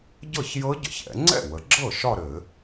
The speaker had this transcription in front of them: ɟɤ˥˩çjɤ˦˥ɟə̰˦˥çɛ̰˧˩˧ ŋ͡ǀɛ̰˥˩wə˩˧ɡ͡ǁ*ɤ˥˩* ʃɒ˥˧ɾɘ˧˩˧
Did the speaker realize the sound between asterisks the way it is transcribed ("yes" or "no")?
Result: yes